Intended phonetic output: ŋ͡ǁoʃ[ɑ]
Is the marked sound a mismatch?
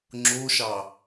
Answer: no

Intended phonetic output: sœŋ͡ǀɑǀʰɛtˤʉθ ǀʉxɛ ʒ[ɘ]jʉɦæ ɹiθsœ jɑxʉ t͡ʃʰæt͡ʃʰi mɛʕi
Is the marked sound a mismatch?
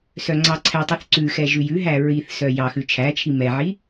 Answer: yes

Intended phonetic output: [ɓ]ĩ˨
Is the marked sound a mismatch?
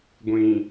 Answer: yes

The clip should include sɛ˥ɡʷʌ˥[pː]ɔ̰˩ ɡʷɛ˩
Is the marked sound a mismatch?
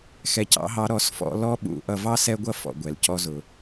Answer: yes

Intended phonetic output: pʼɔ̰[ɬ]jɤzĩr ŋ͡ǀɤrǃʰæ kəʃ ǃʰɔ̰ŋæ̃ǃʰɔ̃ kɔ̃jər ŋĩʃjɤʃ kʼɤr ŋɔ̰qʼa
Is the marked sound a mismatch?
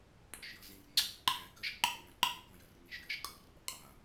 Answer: yes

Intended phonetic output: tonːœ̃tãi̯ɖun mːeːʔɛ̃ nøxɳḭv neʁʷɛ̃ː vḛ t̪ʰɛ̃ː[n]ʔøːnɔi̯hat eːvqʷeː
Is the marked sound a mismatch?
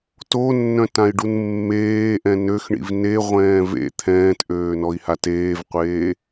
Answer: yes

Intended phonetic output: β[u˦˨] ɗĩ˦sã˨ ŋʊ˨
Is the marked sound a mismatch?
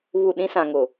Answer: no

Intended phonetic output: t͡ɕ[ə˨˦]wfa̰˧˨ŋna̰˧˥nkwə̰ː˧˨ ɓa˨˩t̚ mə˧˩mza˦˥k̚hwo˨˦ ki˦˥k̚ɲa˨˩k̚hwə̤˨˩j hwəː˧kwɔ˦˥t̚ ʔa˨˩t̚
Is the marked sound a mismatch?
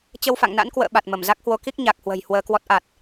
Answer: yes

